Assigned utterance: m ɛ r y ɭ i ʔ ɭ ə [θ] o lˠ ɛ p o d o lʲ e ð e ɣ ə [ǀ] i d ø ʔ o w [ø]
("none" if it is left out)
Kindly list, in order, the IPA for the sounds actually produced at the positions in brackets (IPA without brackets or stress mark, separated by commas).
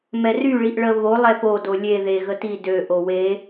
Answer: β, t, e